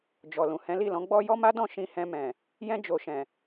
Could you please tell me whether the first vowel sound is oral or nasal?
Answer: oral